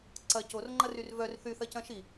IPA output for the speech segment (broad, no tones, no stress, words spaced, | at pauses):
ǀɐ corŋ͡ǃɐryr vœr θyθɐcɐ̃ ʃi